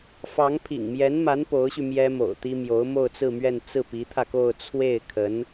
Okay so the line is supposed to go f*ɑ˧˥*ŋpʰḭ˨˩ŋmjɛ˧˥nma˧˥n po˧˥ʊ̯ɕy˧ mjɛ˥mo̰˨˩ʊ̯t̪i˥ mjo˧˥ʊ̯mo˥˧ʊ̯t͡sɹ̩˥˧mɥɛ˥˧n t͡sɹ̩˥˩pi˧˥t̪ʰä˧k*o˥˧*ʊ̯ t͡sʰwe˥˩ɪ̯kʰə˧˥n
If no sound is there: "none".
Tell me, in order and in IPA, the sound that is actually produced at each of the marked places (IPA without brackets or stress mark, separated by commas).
ɑ˧˥, o˥˧